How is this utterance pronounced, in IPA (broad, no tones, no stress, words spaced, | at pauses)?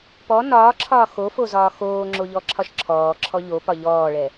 pɔ nɒːǁʰɒː xofo zɒːxoːŋ͡ǁo ʎɔǁʰɒʃǁʰɔːǁʰɔ ʎo pɒʎɔːɭɛ